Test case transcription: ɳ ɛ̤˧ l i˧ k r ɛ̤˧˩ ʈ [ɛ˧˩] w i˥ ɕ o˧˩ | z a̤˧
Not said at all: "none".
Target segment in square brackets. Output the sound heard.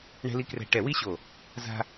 ɛ˧˩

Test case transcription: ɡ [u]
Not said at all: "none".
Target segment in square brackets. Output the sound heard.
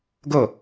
o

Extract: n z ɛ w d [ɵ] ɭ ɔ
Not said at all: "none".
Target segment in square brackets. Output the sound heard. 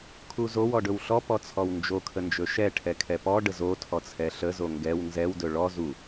ɵ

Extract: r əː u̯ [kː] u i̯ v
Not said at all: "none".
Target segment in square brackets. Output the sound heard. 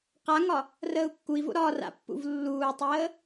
kː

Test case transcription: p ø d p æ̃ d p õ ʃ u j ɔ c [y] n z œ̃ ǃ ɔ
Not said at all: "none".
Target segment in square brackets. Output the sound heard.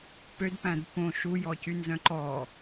y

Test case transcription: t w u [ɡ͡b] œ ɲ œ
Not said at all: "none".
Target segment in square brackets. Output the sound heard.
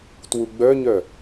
ɡ͡b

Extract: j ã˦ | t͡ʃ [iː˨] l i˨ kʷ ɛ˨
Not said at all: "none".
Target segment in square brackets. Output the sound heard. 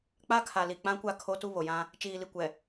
iː˨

